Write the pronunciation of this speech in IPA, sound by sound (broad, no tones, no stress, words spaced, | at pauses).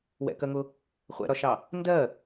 wɛ̰kɜŋʊ | χʷɛ̰ɾɒʃɑ | ndɜ